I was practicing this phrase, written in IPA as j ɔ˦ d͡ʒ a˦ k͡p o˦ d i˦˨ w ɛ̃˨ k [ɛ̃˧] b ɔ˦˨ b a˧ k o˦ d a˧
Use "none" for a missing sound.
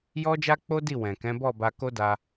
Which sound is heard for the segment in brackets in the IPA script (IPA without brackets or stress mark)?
ɛ̃˨˦